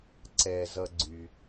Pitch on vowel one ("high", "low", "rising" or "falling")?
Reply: low